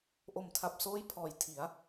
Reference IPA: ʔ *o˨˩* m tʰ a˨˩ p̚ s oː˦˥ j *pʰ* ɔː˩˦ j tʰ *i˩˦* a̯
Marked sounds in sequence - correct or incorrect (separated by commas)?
correct, correct, correct